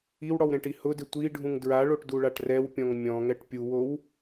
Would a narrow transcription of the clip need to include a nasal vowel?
yes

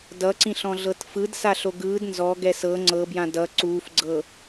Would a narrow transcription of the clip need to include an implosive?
no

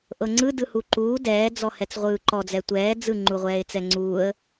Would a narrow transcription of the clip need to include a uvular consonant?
yes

